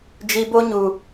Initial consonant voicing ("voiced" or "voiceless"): voiced